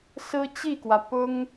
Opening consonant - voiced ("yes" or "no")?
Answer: no